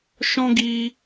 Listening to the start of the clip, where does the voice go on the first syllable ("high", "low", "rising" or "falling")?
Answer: high